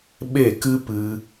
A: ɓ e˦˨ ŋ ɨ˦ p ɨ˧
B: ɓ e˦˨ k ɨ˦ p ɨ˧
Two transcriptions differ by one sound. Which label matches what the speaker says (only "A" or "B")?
B